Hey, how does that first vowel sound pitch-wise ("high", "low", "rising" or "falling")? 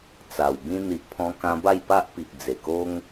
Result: low